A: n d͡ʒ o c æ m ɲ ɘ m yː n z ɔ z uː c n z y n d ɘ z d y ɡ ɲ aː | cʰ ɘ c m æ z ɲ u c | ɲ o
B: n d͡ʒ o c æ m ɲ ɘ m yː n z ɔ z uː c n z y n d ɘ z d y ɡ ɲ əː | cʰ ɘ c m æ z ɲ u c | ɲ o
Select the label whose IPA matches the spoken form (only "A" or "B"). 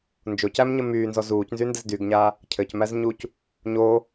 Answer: A